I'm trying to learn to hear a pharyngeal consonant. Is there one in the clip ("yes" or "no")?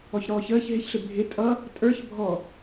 no